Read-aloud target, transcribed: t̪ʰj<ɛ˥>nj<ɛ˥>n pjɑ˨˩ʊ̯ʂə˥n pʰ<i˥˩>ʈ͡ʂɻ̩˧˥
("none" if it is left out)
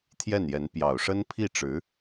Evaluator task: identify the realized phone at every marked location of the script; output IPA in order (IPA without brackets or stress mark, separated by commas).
ɛ˥˩, ɛ˧˥, i˥˩